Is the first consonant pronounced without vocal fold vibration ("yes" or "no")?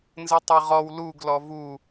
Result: no